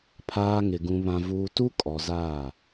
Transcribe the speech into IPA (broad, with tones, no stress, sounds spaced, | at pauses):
pʰ aː˦ ŋ ɪ˨ ɡ ũ˨ β ã˨ v uː˨ t u˦ kʼ ɔ˨ z aː˦˨